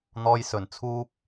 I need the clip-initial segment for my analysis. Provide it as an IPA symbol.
n̪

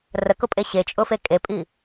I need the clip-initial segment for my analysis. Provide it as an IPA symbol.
r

